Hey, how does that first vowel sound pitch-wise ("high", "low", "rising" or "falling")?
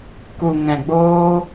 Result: low